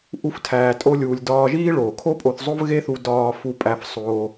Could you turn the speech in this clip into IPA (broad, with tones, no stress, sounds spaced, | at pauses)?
ʔ u˦ f tʰ æː˧ tʼ o˦ lʲ uː˧ lʲ d ɒː˧ ʒ iː˦ ɭ oː˨ kʰ o˦ pʼ o˧ θ zˤ o˦ v ɣ e˦ θ u˧ d ɒː˧ f u˧ pʼ æ˧ f sˤ oː˧